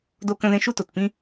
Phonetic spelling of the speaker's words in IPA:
d o˧ k ə̃˧ ð ẽ˧ ʃ u˧ t o˩ t p ĩ˧

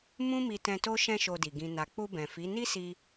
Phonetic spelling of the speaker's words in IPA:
m ũ˦ m i˧ t ɛ̃˧ t o˦ ʃ ɛ̃˦ ʃ o˧ d i˨ ɡ ĩ˨ n a˨ k͡p u˧ b ɛ̃˨ f i˨˦ n i˦ s i˧

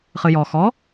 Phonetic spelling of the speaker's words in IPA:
χ ɨ j ɔ x ɔ

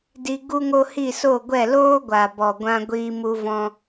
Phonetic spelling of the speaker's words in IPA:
d i˧ ɡ u˦ ŋ o˦ h i˦˨ s o˦˨ ɡʷ ɛ˦˨ l oː˦ ɡʷ a˨ b ɔ˨ ɡʷ ã˦ ɡʷ iː˦ m u˦ v ɔ̃˦

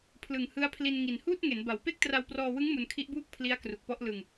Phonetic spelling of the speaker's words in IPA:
pʰ l ɯ˨˩ ŋ h ɯ˦˥ a̯ pʰ l i˧ n ŋ i˨˩ n h uː˥˩ t̚ ŋ e˩˦ n b a˩˦ w p e˥˩ k̚ t r a˧ w p r ɔː˧ w ɯ˦˥ ŋ m u˧ n kʰ i˦˥ ʔ b uː˥˩ k̚ pʰ l i˦˥ a̯ k r u˨˩ k̚ p ɔ˥˩ ʔ l ɯ˧ ŋ

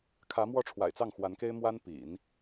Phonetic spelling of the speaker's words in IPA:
kʰ ä˧˥ m w ɔ˥˩ ʈ͡ʂʰ w a̰˨˩ ɪ̯ t͡s ɑ˥˩ ŋ x w a˧˥ n k e˥ ɪ̯ m w a˥ n p ḭ˨˩˦ n

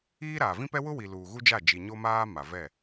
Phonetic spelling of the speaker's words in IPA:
iː˦ ɾ aː˨ v ĩ˦ p ɛ˦ w ʊ˦ w i˨ l uː˨ ɣ u˦ d͡ʒ a˦˨ d͡ʒ i˨ ɲ o˦ m aː˦ m a˨ v ɛ˦˨

